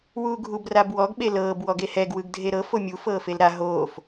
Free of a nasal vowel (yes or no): yes